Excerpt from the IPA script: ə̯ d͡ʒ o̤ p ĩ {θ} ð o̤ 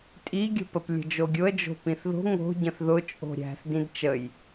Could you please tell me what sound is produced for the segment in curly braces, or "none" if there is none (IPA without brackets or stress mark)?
θ